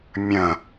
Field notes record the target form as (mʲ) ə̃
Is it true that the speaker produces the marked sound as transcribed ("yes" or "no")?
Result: yes